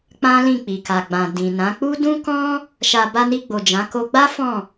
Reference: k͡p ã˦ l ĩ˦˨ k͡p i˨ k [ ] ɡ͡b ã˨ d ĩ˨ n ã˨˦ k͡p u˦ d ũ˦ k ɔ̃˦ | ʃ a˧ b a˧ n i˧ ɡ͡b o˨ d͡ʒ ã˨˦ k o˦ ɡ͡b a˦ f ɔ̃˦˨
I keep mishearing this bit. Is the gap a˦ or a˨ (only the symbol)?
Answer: a˨